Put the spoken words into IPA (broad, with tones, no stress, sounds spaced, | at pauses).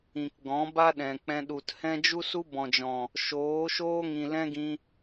ĩ˨ k ɡ ɔ̃˨˦ b a˦ ɗ ɛ̃˨ k͡p ɛ̃˧ ɗ u˨ t h ɛ̃˦ d͡ʒ u˦ s u˦ b ɔ̃˨ d͡ʒ ɔ̃˨ | ʃ oː˨˦ ʃ oː˦ ŋ ĩ˨ l ɛ̃˦ ɡ ĩ˧